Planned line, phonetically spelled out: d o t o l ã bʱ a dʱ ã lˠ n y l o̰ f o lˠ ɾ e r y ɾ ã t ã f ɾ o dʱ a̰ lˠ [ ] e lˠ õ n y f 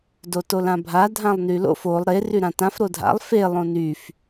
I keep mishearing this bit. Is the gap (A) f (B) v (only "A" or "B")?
A